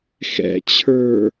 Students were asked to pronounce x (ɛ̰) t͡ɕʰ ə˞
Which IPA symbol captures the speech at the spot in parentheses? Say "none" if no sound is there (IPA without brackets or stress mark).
ɛ̰